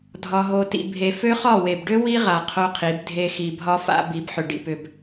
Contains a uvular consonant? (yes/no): yes